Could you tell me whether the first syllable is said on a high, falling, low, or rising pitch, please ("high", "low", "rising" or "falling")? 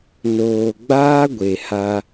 low